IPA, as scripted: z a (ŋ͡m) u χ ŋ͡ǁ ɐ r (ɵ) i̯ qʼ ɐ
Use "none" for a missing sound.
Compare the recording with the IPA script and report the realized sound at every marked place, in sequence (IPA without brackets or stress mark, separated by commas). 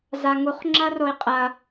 ŋ, o